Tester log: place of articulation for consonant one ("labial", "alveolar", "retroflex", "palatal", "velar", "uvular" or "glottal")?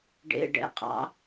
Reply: retroflex